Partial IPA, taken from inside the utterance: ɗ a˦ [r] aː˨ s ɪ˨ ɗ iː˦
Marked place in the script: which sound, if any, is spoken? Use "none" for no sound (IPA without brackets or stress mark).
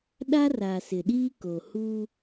r